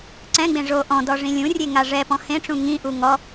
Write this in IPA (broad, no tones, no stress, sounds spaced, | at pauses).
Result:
ǀ ɛ̃ ɡ͡b ẽ ʐ o ʔ ɔ̃ d ɔ ʐ ĩ lʲ ũ rʲ e ŋ a ʐ ɛ p ɔ̃ h ẽ ʈ͡ʂ ũ ŋ ĩ ʔ u ŋ ɔ